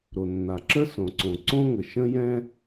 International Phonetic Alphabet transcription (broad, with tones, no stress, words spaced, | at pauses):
ɾo˩nːa˩ǁə˥ sõ˩ǀõ˩ ǀõ˥ŋə˩ ʃə̃˥jɛ̃˥